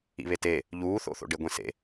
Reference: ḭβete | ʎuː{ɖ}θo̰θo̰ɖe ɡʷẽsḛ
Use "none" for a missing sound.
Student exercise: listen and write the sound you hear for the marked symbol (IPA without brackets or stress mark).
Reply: none